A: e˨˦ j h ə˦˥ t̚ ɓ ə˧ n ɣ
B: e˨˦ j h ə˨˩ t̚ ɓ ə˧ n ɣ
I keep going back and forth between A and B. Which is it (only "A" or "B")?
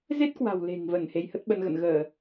A